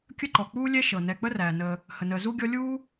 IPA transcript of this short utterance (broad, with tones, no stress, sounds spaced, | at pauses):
kʲ ə˥ ǃ ɔ˩ k͡p uː˥ lʲ ɛ˥ ʃ ɤ˩ n ɛ˨ k͡p ə˥ r æː˩ n əː˨ | h ə˩ n əː˨ z u˥ ɡʲ ɔ˦ lʲ uː˥